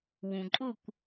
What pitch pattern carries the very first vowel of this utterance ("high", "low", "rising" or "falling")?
low